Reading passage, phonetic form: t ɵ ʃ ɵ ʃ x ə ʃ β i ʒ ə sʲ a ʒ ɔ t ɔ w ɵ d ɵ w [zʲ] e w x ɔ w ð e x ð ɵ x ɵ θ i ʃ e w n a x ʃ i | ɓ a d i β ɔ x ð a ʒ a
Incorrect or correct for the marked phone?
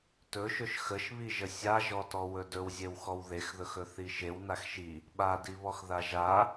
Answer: correct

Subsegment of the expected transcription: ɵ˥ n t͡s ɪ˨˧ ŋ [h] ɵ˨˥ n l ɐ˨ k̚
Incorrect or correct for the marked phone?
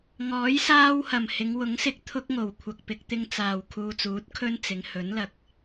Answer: correct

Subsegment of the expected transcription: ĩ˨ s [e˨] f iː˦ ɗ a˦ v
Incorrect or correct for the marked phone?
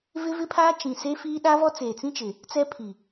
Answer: incorrect: e˦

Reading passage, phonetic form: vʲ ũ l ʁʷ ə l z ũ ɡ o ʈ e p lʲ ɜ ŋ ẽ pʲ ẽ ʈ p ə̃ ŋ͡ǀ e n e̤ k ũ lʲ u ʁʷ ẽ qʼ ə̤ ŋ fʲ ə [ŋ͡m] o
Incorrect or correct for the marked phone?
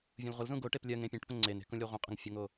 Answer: incorrect: ŋ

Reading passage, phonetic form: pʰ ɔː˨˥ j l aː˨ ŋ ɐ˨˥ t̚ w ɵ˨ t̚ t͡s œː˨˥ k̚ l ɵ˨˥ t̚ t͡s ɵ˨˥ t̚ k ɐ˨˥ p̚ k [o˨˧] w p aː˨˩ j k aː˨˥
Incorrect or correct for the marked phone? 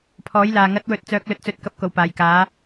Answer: incorrect: o˨˩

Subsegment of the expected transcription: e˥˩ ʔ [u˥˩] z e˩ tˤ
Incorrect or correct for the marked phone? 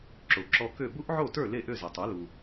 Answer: incorrect: ø˥˩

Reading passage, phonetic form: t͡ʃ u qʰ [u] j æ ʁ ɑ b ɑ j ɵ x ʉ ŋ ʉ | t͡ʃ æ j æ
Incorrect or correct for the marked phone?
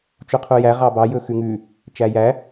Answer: correct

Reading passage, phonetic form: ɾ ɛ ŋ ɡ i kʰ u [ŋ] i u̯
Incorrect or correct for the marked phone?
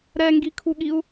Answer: incorrect: ɠ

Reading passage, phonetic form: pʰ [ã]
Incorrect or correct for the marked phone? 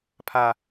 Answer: incorrect: a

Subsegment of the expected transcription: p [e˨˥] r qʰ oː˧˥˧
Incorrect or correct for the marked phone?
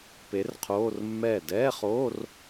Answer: correct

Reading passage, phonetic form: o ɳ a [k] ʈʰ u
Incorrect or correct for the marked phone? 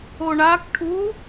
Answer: correct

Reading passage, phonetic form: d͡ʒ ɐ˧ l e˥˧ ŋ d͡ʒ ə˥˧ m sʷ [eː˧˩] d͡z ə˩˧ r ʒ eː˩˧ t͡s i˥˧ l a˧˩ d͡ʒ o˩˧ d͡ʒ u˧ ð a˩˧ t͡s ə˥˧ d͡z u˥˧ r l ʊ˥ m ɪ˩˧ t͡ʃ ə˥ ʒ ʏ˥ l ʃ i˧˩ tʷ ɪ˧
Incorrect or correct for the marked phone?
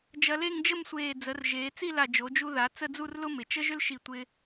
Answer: correct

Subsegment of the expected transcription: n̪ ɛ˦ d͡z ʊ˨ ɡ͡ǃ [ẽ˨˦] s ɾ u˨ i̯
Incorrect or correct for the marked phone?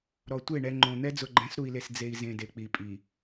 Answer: incorrect: ɛ̃˨˦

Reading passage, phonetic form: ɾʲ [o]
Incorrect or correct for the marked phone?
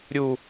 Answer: incorrect: u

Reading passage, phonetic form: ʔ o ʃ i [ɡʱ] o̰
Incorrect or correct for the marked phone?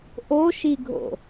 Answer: correct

